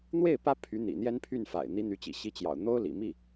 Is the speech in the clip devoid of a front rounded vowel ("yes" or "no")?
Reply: no